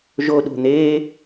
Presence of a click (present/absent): absent